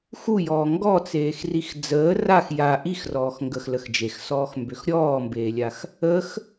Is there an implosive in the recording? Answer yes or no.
no